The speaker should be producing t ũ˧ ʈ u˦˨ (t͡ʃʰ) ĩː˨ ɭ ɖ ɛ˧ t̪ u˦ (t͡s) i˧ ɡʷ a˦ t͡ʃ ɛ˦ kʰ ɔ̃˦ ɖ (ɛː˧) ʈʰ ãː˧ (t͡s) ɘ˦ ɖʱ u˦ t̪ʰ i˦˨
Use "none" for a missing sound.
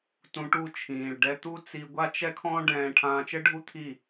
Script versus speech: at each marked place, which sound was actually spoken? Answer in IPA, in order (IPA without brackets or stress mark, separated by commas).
t͡ʃʰ, t͡s, ɛ̃ː˧, t͡ʃ